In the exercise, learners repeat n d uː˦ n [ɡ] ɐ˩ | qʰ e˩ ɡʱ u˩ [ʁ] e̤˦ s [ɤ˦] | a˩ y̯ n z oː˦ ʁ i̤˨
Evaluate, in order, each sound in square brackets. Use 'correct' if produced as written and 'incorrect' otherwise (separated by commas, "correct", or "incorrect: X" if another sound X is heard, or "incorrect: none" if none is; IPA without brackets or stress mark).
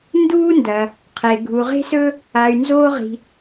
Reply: incorrect: d, correct, incorrect: ɵ˦